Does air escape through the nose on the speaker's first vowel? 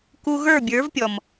no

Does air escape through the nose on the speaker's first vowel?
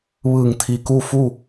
no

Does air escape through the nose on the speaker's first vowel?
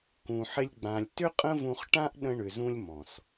yes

